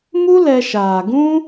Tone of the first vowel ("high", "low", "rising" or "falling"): high